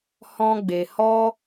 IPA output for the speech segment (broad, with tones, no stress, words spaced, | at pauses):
hɔ̃˦ɡ͡be˧ hɔ˦